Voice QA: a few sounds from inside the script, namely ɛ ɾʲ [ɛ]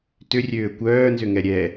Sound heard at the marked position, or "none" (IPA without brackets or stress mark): ɛ